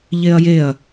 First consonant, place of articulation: palatal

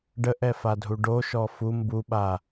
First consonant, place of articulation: retroflex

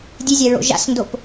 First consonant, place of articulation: alveolar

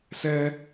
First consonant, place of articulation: alveolar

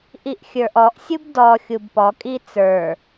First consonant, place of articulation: glottal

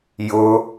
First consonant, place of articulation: palatal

